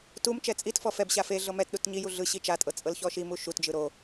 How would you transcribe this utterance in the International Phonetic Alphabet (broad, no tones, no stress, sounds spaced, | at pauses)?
t u m t͡ʃ ɛ t͡sʼ i t f ɔ f ɛ b ɕ a f e ɮ ɤ m ɛ t ɗ u t ɲ i j u ɮ ɯ ɕ i t͡ʃ a tʼ ɤ t͡sʼ ɤ l ç ɔ ʃ i m u ʃ u t d͡ʒ ɯ ɾ o